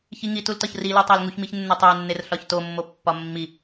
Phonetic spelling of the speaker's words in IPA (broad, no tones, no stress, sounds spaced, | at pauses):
ç i ŋ i t u l t ɒ ç r i l e tˤ æ l ŋ u ç m i ç nː o tˤ æ nː e r ɬ ɒ ç t o mː o pː ɒ mː i